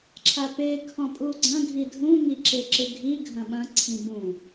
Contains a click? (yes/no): yes